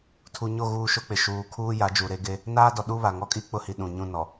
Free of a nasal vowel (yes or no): no